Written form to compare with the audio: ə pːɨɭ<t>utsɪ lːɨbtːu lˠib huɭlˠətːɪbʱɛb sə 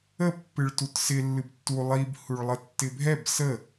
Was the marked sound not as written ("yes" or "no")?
no